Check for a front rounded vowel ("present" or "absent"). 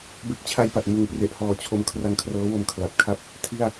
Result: absent